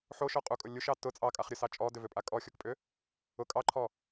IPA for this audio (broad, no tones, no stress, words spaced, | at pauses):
ħoʃɔqʼukʼʊ lʲuʃɑ tʊ t͡sʼɑkʼaχɾʲʊsɑ t͡ʃʼɔdʏvʏpʼa kʼɔxʲokpʼʏ | ʊ kʼɑǃʰɔ